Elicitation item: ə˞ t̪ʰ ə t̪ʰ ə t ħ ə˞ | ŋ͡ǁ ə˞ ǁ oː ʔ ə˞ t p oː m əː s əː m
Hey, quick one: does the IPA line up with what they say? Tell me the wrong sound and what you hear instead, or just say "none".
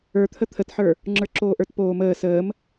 none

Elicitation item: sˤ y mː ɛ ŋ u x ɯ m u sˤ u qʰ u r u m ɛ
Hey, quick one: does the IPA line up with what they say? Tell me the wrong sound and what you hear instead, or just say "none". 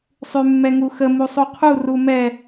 ɯ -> ə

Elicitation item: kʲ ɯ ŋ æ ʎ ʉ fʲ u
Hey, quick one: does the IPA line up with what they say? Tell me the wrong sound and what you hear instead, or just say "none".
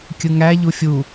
ʉ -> u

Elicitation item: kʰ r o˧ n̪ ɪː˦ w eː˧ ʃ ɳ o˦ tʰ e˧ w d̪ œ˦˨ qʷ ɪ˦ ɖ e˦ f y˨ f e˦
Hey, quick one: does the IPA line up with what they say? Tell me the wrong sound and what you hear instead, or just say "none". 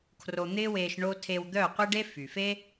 none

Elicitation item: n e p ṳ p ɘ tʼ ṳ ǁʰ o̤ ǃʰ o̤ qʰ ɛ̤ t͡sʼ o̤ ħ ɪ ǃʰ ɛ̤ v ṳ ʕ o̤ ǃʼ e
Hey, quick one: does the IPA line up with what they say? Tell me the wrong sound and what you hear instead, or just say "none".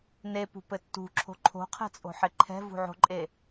tʼ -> tː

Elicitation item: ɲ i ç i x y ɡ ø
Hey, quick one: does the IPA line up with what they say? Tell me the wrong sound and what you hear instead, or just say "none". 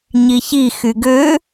none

